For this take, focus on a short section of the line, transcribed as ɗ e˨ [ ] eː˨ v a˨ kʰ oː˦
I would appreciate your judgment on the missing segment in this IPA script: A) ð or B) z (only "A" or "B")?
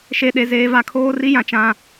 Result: B